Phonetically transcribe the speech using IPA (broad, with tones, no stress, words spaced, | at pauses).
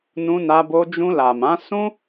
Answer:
nũ˧na˧bo˧ d͡ʒũ˧la˨mã˨˦ sũ˦